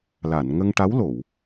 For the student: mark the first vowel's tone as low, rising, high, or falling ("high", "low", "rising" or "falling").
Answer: low